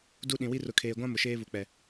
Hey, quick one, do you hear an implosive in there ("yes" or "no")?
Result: yes